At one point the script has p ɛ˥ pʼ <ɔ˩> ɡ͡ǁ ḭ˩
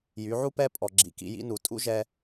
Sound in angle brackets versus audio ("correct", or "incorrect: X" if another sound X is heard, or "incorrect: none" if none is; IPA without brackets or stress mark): correct